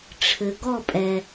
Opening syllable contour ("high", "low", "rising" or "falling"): low